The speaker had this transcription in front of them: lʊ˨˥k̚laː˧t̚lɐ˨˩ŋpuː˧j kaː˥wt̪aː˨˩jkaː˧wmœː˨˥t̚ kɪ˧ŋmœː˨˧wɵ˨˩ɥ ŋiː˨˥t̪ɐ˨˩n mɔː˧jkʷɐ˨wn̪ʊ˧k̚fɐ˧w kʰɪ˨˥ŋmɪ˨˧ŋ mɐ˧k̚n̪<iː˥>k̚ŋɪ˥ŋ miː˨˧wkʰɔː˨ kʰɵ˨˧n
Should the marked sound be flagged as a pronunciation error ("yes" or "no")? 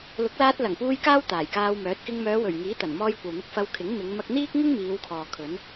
no